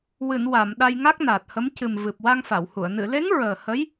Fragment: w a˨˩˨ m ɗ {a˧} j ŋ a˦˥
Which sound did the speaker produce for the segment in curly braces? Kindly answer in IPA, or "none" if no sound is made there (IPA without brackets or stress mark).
a˧